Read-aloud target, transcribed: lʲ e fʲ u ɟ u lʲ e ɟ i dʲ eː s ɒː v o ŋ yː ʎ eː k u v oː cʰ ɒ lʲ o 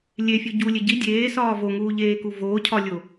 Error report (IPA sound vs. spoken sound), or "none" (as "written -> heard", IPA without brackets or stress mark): yː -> uː